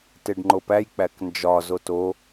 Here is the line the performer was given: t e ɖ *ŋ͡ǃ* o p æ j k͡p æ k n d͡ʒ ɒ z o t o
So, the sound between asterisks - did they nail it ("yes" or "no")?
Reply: yes